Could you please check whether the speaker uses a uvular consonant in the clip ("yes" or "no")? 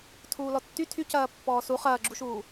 yes